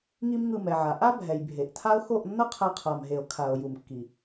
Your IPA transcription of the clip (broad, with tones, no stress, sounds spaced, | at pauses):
ŋ i˦ m ŋ ɯ˧ m ɛ˨ ʕ a˨ ʔ a˦ bʱ ɛ˨ j bʱ e˨ ʔ tʰ a˦ o̯ x o˦˨ ʔ nː ʌ˦ qʰ ɛ˧ qʰ a˨ m ɦ e˨ o̯ kʰ a˨ o̯ j u˨ m kː i˨